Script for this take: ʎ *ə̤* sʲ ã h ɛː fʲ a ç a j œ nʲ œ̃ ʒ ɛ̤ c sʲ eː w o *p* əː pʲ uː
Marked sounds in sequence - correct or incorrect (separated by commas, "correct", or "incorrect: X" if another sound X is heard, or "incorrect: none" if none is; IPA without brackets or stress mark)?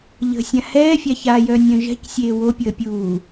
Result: correct, incorrect: pʲ